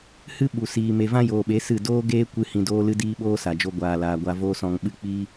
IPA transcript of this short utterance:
h ɨ˦ ɓ u˨ s iː˨ m e˨ v ã˦ j oː˨ ɓ e˨˦ s ɨ˦˨ d oː˦ ɡ eː˦ kʷ ɨ˧ h ĩ˧ d oː˦ l ɨ˦ d iː˦ ɓ oː˦ s a˨ d͡ʒ o˧ ɡʷ aː˧ l aː˧ ɡʷ a˦ v oː˦ s ɔ̃˧ ŋ ɓ ɨ˦ k͡p iː˦

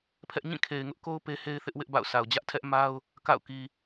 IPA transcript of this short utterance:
pʰ ɛ˦ ʔ ɲ ĩ˦˨ kʰ e˨ ɪ̯ ŋ ʊ˦ ʔ k o˦ ʊ̯ p e˦ h e˦ ɪ̯ θ ɪ˦ ʔ w ɪ˦ ʔ b a̰˦˨ ʊ̯ s a˨ ʊ̯ d͡ʑ ä˦ ʔ tʰ ɛ˦ ʔ m a˦ ʊ̯ | k a̰˦˨ ʊ̯ k i˨

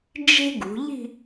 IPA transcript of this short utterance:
d͡ʒ e̤˥ ɡ ṳ˩˧ ʎ i̤˥˧

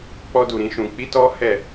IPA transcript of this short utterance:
k͡p ɔ˦ d u˧ ɾ ĩ˦ ʃ ũ˧ k͡p i˦ t ɔ˦ h ɛ˦˨

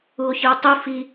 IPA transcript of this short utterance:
u o̯ ç ɨ o̯ tˤ ɨ f i

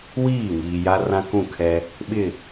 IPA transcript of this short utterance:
w iː˦˨ ŋ iː˨ j a˦ r ã˦ k ũ˦˨ kʰ ɛ˦ | ɓ ɪ˦˨

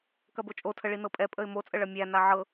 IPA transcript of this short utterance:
k ɐ b o t͡ʃʼ o tʰ ə ɭ i n ɤ pʼ ɛ pʼ ə ɪ̯ m o t͡sʼ ə ɭ ɐ mʲ æ n a ʕ ɤ

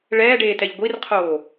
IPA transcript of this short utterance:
ɭ ɛː ɖ eː t ɛ ʎ ɡʷ i r qʰ oː

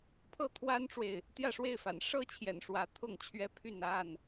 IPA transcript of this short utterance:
pʰ ɤ˥˨ t̪ʰ w a˦ n ʈ͡ʂ w e˨ ɪ̯ | t̪ j ä˥˨ ʂ w e˥˨ ɪ̯ f a̰˨˩ n ʂ ɤ˥˨ t͡ɕʰ j ɛ̰˨˩ n ʂ w ä˨˦ t̪ʰ ʊ˥˨ ŋ t͡ɕʰ ɥ ɛ˦ pʰ y˥˨ n a˥˨ n

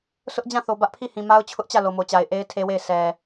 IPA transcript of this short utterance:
sʰ ʊ˦ ʔ d͡ʑ ã˦˨ θ o˨ b ä˦ ʔ pʰ i˦˨ h ĩ˨ m a˦ ʊ̯ t͡ɕʰ ʊ˦ ʔ t͡ɕ ä˦˨ l o˨ m o˨ t͡ɕ a˨ ɪ̯ ʔ e˦ ɪ̯ tʰ e˦ w e˦˨ ɪ̯ sʰ ɛ˨

